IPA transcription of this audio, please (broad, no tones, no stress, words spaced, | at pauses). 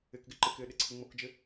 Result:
ɪkɡɪ ǃɪkɪː ɗɪǀʰəŋ͡mokd͡ʒɪ